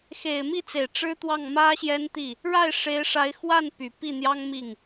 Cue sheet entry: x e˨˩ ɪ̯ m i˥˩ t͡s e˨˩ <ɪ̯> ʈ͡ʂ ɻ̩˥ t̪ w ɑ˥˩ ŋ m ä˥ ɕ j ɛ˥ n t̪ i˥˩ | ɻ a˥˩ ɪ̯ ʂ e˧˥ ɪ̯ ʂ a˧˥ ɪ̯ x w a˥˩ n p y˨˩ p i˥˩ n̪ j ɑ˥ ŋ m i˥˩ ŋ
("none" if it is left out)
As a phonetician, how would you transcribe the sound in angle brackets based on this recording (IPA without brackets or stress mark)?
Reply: ɪ̯